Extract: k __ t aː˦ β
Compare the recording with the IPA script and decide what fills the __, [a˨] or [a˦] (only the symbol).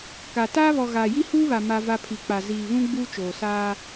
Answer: a˨